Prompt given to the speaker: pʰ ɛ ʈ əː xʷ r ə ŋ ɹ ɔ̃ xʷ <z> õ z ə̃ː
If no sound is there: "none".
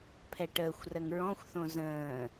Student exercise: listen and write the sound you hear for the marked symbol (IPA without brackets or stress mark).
θ